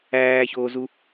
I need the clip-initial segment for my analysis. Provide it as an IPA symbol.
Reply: æː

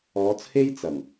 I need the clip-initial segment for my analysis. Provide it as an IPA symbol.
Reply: ɔː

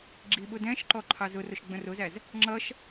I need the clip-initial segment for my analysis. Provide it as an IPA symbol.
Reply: ɡ͡ǁ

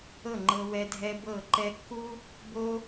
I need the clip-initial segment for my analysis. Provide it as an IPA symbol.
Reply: ɤ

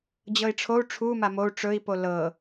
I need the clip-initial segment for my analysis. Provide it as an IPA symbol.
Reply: d͡ʑ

